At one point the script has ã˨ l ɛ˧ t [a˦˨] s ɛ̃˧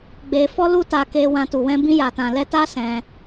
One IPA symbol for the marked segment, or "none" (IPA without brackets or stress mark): a˦